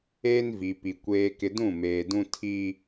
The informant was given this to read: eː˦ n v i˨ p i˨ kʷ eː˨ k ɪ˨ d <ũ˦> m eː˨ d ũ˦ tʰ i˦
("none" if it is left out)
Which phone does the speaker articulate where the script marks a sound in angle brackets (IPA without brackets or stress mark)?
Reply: ũ˦˨